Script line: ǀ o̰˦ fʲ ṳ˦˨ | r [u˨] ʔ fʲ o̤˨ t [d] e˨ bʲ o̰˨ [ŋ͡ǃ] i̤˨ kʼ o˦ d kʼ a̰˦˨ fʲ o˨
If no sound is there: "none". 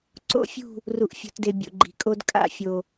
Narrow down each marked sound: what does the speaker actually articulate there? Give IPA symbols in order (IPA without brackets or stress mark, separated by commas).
u˨, d, ɡ͡ǃ